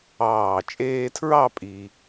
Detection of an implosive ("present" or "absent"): absent